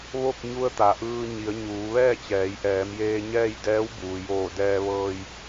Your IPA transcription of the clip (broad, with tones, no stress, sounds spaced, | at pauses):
ʋ o˥˨ k̚ ɲ u˧ ə̯ t̪ a˩ ʔ ɯː˧ ɲ i˩˧ ə̯ ɲ uː˩˧ ʋ ɛː˥˨ t͡ɕ ɛː˩˧ j ʔ ɛː˩˧ m j eː˧ ɲ ɛː˥˨ j d ɛː˧˥ w b uː˩ j oː˧˩ d ɛː˧ ʋ ɤː˧ j